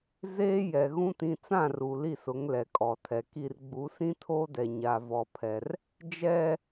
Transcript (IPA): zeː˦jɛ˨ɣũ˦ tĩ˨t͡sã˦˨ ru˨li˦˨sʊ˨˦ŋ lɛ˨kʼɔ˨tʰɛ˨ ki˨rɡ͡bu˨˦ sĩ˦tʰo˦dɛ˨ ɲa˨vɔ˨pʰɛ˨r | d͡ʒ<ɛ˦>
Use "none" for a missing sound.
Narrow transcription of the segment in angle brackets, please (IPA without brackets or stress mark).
ɛ˦